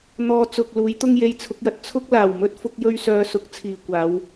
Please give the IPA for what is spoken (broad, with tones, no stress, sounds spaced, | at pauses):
n̪ ɔː˧ t͡s ʊ˨ k̚ l uː˨˥ j t̪ ʊ˥ ŋ j e˧ j t͡sʰ ʊ˨˥ k̚ j ɐ˨ t̚ t͡sʰ ʊ˥ k̚ l aː˨˩ w m ɵ˥ t̚ f ʊ˥ k̚ j ɵ˥ ɥ s œː˧ s ʊ˨˥ k̚ t͡sʰ iː˨ kʷ aː˨˧ w